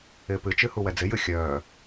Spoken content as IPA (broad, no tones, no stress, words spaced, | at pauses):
ɪːpɨt͡ʃɨ huwɛd͡zɪjɨ xʲœː